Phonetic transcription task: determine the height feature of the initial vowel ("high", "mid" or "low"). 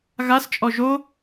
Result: low